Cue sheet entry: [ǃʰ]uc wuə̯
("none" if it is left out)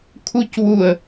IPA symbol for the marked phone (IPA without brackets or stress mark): kʰ